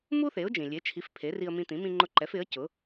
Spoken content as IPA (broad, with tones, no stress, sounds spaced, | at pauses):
m u˥ θ e˩˥ ʊ̯ d͡ʒ ĩ˩ lʲ e˩˥ t͡ʃʰ i˩˥ f pʰ e˩˥ r i˧ ə̯ m ĩ˧ t̪ ĩ˩˥ m ĩ˧ ŋ͡ǃ ʊ˧ ǃ ɛ˩˥ f ɪ˩˥ ə̯ c ʊ˩˥